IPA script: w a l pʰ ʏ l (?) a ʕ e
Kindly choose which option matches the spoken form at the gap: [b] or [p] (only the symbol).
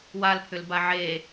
b